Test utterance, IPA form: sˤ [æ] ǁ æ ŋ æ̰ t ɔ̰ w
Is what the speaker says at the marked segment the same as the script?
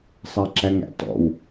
yes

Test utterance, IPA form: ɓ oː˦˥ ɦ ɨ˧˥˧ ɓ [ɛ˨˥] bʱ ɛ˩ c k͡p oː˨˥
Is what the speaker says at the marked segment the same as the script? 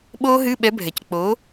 yes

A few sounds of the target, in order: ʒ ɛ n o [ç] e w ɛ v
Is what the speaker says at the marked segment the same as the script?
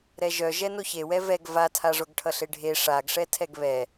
yes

